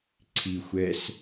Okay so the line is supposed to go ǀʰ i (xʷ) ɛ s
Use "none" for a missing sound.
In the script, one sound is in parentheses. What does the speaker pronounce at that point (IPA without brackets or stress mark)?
xʷ